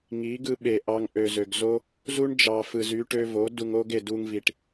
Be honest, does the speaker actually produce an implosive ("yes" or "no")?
yes